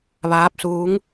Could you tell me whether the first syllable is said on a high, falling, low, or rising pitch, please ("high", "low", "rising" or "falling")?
rising